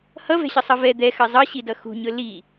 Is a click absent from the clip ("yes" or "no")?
yes